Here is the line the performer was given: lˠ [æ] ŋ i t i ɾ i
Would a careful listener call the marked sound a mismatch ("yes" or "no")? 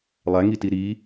no